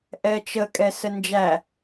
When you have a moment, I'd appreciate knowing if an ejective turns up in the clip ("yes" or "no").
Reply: yes